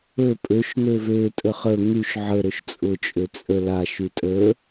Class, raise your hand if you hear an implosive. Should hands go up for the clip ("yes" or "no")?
no